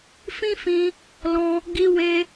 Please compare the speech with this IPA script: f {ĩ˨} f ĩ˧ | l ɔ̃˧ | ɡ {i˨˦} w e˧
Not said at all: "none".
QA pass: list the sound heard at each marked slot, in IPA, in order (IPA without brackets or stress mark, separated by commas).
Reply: ĩ˦, i˧